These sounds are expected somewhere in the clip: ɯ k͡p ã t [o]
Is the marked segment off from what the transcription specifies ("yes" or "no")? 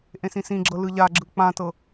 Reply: yes